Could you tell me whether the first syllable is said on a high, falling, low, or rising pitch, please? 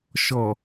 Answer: low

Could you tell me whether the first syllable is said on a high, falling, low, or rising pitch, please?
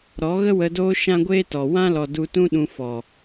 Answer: rising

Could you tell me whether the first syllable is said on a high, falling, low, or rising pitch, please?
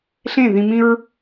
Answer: falling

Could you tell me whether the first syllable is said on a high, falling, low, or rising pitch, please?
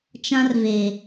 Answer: high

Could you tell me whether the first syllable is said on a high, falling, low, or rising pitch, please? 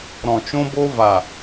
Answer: low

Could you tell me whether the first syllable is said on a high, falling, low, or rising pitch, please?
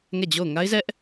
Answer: falling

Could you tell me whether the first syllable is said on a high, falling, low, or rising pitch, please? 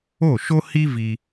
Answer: falling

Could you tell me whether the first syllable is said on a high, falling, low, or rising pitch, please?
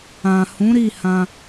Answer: low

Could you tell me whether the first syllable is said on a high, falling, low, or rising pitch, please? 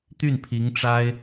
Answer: falling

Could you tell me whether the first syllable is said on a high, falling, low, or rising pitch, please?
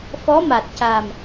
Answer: rising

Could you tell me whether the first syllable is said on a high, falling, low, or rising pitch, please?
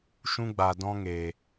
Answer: high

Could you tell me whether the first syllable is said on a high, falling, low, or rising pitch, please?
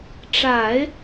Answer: low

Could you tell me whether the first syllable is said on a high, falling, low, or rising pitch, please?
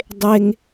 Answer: high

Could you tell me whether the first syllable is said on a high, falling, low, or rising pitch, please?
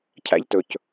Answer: high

